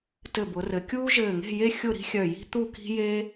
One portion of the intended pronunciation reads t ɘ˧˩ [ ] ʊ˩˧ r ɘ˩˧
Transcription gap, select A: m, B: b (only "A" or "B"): B